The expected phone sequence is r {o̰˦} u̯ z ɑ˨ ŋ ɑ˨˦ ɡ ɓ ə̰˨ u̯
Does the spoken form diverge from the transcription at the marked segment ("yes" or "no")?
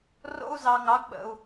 no